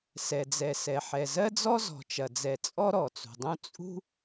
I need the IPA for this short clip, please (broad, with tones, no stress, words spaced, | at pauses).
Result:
sɛ˩d͡zɛ˩sɛ˩ ħɛ˩zɜ˥d͡zɔ˥ zɔ̤˩t͡ʃɐ˩d͡zɛ˩ t͡sʼɔ˥ɾɔ˩t͡sṳ˩dˤũ˥ t͡sʼṳ˥